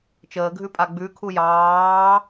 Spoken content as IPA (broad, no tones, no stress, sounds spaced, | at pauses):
t͡ʃ əː ɡʱ ʉ pʼ a ɡ͡b ʉ kʰ u j ɑː